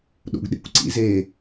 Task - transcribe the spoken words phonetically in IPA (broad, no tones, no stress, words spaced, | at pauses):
ɗo̰ɡɗḛkʷǀḭz e